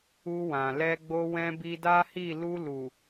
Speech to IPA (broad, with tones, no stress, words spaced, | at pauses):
u˧wã˨lɛ˧ɡ͡bo˧ wɛ̃˧ bi˧da˦hi˦˨ lu˧lu˨